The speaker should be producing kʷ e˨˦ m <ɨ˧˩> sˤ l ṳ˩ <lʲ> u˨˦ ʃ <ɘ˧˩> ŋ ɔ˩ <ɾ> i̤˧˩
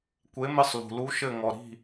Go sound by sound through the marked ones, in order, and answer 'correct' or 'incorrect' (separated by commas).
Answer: correct, incorrect, correct, correct